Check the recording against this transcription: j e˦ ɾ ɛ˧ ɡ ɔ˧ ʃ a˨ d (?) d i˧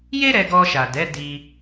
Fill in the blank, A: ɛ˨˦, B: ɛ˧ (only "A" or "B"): A